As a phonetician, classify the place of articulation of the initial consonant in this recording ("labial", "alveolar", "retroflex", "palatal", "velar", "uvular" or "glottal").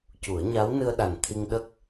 palatal